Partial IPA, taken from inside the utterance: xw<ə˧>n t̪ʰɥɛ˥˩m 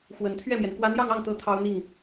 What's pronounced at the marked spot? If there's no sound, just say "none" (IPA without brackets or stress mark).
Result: ə˨˩